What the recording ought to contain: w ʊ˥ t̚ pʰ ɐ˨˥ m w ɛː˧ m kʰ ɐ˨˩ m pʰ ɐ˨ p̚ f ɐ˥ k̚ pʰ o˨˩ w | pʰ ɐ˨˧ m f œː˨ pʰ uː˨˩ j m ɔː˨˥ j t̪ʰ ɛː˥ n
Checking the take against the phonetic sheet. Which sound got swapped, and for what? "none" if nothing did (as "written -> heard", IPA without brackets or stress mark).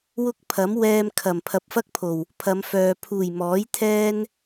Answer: t̚ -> k̚